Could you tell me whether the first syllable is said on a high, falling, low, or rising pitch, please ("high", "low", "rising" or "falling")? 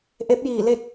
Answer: rising